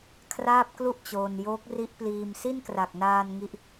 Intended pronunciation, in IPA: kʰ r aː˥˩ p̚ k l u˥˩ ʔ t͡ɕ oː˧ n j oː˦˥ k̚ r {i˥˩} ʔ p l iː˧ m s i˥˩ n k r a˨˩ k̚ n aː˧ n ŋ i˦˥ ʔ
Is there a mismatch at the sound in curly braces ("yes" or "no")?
yes